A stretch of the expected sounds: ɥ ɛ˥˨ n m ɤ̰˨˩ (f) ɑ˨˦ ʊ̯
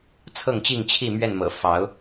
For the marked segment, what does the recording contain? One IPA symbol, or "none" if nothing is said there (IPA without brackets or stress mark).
f